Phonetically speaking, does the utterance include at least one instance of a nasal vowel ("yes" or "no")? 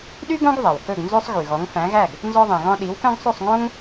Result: yes